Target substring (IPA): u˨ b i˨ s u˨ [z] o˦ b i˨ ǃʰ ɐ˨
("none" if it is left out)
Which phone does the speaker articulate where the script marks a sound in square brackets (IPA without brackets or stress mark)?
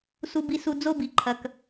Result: d͡z